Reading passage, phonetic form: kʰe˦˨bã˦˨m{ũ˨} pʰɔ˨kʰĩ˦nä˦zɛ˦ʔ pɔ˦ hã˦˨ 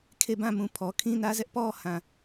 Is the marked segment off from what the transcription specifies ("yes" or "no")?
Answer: no